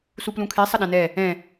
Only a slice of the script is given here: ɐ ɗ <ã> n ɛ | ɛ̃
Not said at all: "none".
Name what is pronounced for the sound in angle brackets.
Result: ã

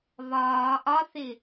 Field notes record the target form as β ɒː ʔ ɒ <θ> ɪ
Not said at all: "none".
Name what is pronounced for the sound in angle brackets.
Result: θ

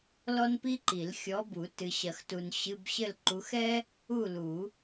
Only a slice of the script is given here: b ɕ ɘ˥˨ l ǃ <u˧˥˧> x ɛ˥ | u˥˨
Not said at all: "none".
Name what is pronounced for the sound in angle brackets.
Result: u˨˦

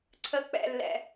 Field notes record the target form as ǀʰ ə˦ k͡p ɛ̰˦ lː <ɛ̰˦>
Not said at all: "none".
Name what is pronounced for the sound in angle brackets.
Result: ɛ̰˦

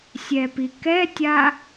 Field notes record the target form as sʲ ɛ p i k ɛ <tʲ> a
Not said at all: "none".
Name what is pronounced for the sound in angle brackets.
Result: tʲ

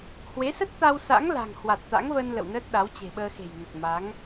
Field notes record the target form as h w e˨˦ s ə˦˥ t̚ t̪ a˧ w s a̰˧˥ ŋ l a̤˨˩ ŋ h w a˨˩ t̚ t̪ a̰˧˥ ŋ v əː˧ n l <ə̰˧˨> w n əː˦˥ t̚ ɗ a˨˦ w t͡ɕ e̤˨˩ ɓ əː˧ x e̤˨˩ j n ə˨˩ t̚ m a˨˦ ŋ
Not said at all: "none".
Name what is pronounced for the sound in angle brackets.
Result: ə̰˧˨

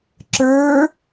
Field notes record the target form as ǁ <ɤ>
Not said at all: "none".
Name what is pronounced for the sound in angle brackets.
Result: ə˞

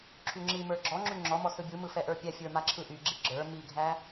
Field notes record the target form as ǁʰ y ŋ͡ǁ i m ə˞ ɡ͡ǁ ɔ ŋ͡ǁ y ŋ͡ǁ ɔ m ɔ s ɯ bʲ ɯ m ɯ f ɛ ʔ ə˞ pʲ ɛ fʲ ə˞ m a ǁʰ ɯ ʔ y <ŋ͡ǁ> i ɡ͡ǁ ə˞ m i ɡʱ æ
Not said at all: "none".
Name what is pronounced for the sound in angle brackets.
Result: ɡ͡ǁ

